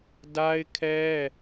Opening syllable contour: high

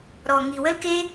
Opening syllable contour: low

